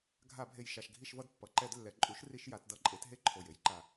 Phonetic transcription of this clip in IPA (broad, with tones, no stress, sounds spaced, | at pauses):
ɡʱ a˧˩˧ bʱ e˨˩ j ʃ a˨˩ ʃ ɡʱ i˦˨ ʃ v ʌ˦˨ d pː ʌ˩˧ ǃ ɛ˧˩˧ d lː ɛ˩˧ ǃʼ u˩˥ ʃ r i˧˩˧ ʃ j a˩˧ t d ʌ˧˩˧ ǃʼ e˩˥ t ɦ e˦˥ ǃʰ o˨˩ j e˦˥ j ǃ a˨˩